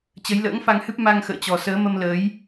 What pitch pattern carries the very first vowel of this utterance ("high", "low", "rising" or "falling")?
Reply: rising